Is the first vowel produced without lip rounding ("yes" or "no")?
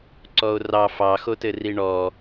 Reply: no